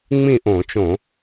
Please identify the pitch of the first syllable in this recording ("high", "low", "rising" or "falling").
falling